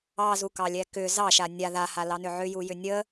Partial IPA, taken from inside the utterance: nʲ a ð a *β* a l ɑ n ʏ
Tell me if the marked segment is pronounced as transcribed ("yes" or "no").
no